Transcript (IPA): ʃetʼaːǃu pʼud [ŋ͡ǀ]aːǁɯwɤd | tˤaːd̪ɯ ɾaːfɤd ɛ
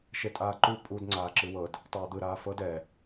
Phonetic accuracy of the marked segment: correct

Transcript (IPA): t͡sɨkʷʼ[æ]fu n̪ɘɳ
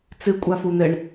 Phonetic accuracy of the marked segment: incorrect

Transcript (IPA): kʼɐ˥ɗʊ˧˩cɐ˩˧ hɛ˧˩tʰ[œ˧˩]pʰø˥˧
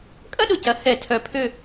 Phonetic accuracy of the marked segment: correct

